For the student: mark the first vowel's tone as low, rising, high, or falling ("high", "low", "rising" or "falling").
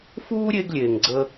high